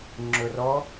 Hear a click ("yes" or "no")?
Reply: yes